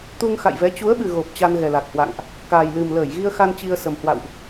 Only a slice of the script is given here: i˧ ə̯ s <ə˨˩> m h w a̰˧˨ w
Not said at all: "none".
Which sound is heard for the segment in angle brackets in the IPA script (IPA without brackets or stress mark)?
ə˨˩